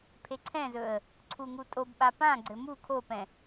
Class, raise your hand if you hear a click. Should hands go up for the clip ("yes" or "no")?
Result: yes